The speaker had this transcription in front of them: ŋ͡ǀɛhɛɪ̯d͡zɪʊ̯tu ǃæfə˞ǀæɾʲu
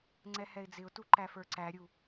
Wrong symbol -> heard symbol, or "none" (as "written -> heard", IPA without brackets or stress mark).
none